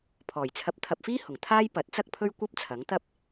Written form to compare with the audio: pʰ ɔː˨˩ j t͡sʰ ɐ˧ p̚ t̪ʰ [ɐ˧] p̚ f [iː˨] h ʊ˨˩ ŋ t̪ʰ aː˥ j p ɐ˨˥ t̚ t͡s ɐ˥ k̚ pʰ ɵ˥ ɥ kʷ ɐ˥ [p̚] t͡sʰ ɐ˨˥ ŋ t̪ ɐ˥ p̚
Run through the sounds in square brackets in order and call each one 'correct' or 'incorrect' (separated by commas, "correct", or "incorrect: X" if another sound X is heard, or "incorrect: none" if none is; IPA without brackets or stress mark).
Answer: correct, incorrect: iː˥, correct